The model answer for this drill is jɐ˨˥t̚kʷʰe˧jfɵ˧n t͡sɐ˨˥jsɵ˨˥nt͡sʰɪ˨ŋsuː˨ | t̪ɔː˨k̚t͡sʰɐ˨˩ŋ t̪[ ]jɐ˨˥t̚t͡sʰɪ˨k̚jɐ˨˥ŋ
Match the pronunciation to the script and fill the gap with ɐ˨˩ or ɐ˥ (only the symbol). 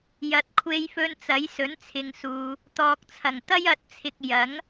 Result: ɐ˥